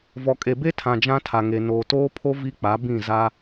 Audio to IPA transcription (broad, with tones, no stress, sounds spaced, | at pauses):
v ɔ˨ kʼ e˨ b e˦ tʰ ã˨ d͡ʒ ã˦ tʰ a˨ ŋ e˨ n oː˨ t oː˦ pʰ o˦ v i˦ k͡p a˨˦ b ĩ˦˨ z a˦